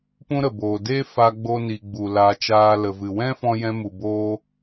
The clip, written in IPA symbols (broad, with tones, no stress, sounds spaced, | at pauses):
p ũ˦ ɾ ə˨ b oː˨ d eː˦ f a˧ ɡ͡b o˧ n i˧ ɡ͡b u˨ l aː˧ t͡ʃ aː˦ l ə˨ v ɨ˨ w ɛ̃˦ f ɔ̃˧ j ɛ̃˧ m u˨ b oː˧